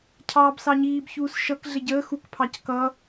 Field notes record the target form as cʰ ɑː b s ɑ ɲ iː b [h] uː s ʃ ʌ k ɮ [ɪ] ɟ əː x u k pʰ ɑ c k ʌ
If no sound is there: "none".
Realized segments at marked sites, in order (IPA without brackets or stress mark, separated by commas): ç, ɪ